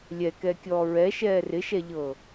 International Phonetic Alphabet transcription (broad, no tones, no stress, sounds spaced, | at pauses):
lʲ ɛ k ɛ kʲ ɔː ɹ ɛ ʃ ɛː r ɪ ʃ ɛ ʎ ɤː